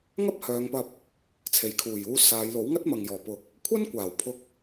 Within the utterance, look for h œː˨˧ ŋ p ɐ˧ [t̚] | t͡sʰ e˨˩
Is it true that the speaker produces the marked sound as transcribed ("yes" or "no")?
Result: no